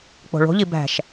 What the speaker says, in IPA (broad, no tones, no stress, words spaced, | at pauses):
k͡po̤ɭo̤ʎi bæ̤ʃ